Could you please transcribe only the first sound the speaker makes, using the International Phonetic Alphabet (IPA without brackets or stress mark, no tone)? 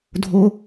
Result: dʱ